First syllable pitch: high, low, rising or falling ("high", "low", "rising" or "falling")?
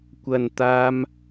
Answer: low